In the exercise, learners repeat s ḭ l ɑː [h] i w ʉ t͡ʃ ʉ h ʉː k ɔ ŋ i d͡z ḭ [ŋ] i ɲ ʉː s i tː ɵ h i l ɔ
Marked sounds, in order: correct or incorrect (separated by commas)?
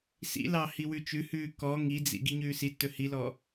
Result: correct, incorrect